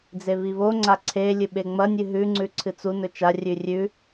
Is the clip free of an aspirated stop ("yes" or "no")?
no